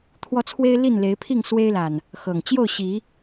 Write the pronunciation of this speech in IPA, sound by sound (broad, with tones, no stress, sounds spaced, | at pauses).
t̪ʰ w ɔ˦ t͡sʰ w e˦ ɪ̯ l i˥˨ n l e˨˦ ɪ̯ pʰ i˥˨ ŋ s w e˦ ɪ̯ l a˨˩ n | x ɤ˨˩ ŋ t͡ɕ j o˥˨ ʊ̯ ɕ i˨˦